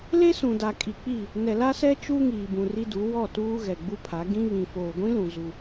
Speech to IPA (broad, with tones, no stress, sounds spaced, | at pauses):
l e˦ s ũ˨ d a˨ kʼ i˨ k͡p i˦˨ | n ɛ˨ l a˦ s ɛ˦ t͡ʃ u˦ ŋ iː˨ b ũ˨ r i˦ d u˨˦ w ɔ˦˨ t uː˦ ɣ ɛ˨ ɡ͡b u˦ pʰ a˨˦ ɡ ĩ˦ β ĩ˨ f oː˨ ɡʷ ĩ˦ l ũ˨ z u˨